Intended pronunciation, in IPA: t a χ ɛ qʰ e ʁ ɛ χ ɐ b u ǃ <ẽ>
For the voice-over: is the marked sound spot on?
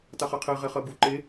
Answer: no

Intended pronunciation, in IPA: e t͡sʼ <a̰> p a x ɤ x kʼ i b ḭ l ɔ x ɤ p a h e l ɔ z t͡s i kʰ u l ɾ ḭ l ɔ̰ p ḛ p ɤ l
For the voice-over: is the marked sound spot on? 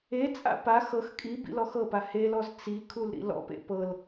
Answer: yes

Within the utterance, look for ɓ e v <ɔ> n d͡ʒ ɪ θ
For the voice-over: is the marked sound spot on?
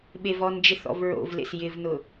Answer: yes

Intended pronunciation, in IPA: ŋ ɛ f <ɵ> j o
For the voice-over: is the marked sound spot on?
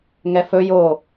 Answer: yes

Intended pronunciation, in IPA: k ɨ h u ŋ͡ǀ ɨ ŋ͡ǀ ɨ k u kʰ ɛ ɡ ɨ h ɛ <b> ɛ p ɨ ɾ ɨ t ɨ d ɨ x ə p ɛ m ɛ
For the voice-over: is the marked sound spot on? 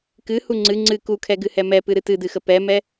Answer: no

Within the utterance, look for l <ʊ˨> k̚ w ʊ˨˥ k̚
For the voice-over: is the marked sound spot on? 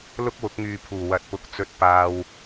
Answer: no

